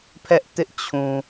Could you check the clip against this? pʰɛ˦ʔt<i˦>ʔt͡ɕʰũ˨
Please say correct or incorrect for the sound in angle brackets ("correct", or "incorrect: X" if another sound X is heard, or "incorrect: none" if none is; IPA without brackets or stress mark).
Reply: incorrect: ɪ˦